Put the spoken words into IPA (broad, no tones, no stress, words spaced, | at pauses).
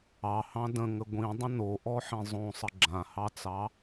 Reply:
ɑhɑ̃ də̃ŋə ɡʷĩdˤə̃ noʔɔħĩ zˤõsˤə ɡ͡ǁãhɑt͡sɑ